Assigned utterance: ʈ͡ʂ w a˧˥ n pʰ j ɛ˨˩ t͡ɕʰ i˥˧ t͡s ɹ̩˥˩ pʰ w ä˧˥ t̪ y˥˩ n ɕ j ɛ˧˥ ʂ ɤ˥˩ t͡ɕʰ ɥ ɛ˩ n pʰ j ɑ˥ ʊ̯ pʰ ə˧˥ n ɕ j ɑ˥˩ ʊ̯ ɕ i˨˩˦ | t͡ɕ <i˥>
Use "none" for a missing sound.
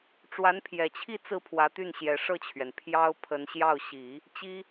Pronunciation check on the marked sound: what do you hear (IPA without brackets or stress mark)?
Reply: i˥